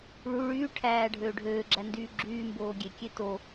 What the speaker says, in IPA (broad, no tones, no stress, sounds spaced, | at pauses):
ɭ u ɭ yː ʈʰ æː ɖʱ øː ɖʱ øː ɡ͡ǁ æ n d yː ɡ͡ǁ yː m b oː ɡʲ e kʲ e t o